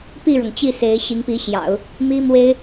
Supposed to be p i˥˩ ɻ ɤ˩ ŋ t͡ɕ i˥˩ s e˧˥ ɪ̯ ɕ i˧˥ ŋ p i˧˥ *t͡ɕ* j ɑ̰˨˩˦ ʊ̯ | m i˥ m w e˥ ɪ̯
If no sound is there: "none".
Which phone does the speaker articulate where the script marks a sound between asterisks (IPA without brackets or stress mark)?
ɕ